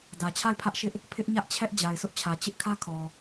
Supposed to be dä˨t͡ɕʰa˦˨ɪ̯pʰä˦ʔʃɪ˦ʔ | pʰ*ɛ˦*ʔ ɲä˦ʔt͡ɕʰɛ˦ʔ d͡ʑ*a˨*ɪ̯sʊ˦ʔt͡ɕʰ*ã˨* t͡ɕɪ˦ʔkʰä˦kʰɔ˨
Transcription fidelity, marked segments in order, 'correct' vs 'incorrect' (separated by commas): incorrect, correct, incorrect